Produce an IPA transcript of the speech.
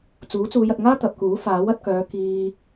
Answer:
t͡s uː˨˥ t͡s uː˨˧ j ɐ˨ t̚ ŋ aː˥ t̪ ɐ˨ p̚ k uː˨˥ f aː˨˥ w ɐ˧ t̚ k œː˨˧ k iː˧

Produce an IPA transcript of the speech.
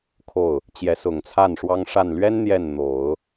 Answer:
kʰ o˥˩ ʊ̯ | t͡ɕ j ɛ˧˥ s ʊ˨˩ ŋ t͡sʰ a˥˩ n ʂ w ɑ˥ ŋ ʂ a˥˩ n l ɥ ɛ˥ n n̪ j ɛ˥˩ n n̪ o˨˩˦ ʊ̯

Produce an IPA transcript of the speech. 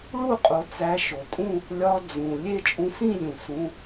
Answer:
ɭ u˥˧ qʼ o˧ t͡s æ˧˥ ʃ o˩ tʼ ũ˥˧ | lʲ ɒ˧ d͡z ũ˩ lʲ e˥˧ t͡ʃʼ ũ˧ s ĩ˥˧ lʲ ũ˩ s ũ˩˧˩

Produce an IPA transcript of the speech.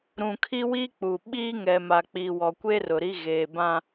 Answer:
ɾ ũ˨ kʰ i˦ w i˦ k͡p u˨ ɓ iː˦ ŋ ɛ˨ m a˨ k͡p i˨ w ɔ˨ kʷ e˦ r ʊ˨ ɾ i˦ ɣ eː˨ b ã˦

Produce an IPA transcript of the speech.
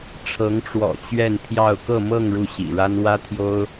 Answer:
ʈ͡ʂʰ ɤ˧˥ ŋ ʈ͡ʂ w ɔ̰˨˩ t͡ɕ ɥ ɛ˥˧ n pʰ j ɑ˥˧ ʊ̯ k ɤ˥˧ m ɤ˥˧ ŋ ɻ u˥˩ ɕ ḭ˨˩ ɻ a˥ n w ä˥ t̪ʰ j o˥ ʊ̯

